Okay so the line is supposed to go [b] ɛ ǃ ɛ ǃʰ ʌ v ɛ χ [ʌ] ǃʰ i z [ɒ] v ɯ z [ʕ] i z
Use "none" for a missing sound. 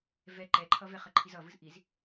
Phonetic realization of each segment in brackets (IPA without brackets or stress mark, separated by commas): v, ʌ, ʌ, ʔ